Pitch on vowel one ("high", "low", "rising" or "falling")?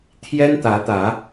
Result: high